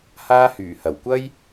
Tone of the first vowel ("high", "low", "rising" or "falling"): high